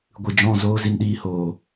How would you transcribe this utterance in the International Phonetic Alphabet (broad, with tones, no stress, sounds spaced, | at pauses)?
ɡʷ ɨ˨ d͡ʒ ɔ̃˦˨ z oː˦ z i˧ n ɗ iː˧ h oː˨